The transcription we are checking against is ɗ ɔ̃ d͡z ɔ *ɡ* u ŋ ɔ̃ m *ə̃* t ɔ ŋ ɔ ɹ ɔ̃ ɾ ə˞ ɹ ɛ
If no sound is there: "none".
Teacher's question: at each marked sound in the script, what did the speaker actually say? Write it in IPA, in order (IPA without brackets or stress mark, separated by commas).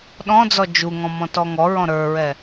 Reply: d͡ʒ, ɔ̃